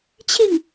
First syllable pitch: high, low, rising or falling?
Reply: falling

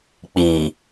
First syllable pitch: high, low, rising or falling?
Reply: low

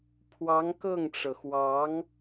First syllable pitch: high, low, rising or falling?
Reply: rising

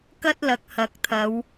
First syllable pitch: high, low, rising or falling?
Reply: high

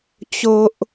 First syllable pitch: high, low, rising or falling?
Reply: high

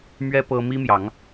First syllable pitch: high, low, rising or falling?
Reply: high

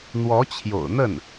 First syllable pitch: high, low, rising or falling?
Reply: rising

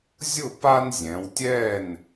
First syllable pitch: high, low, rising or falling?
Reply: falling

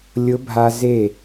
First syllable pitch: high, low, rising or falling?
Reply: rising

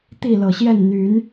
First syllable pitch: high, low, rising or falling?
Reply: falling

